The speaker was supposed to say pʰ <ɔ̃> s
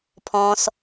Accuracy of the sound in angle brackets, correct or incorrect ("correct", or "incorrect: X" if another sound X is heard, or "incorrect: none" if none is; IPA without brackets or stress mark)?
correct